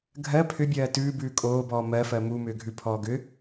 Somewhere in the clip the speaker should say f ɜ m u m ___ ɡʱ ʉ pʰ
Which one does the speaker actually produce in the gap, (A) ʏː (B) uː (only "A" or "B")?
A